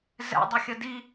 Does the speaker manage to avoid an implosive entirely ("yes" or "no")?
yes